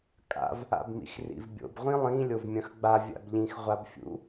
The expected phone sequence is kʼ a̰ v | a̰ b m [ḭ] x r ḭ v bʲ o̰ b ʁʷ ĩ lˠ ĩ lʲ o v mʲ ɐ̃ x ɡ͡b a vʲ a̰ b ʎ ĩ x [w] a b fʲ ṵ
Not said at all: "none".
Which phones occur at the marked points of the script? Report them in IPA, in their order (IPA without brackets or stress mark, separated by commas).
ḭ, ʁʷ